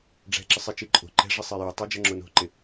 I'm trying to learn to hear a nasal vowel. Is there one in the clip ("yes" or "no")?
no